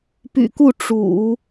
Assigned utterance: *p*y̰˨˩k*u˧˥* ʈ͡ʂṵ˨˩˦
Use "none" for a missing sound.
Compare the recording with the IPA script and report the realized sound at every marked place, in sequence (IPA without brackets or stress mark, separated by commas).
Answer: p, u˥˩